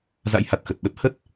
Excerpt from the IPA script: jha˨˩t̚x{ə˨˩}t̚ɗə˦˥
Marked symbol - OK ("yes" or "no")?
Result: yes